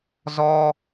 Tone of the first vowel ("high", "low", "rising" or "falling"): high